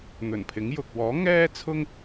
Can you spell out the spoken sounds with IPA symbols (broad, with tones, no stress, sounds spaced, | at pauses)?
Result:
n̪ ɵ˨˩ n pʰ ɪ˨˥ ŋ j ʊ˨ k̚ w ɔː˨˥ ŋ ɛː˥ t͡sʰ ʊ˥ ŋ